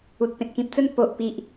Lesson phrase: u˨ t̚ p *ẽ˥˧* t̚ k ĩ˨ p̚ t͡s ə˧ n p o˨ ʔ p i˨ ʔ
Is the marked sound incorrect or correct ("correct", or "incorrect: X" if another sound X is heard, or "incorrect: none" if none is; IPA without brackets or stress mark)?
incorrect: ẽ˨